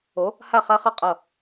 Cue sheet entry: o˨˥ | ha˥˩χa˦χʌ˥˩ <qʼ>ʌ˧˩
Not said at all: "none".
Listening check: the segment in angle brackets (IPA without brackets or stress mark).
qʼ